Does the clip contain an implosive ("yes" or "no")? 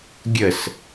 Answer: no